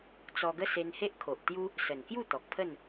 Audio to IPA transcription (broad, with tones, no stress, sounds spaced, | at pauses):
t͡s ɔ˧ ɡ ə˦ s e˧ n h e˦ ʔ kʰ o˨ ʔ t̪ j u˦ | s ə˨˩ n k j u˥˧ t̪ ɔ˨ k̚ pʰ ə˥˧ n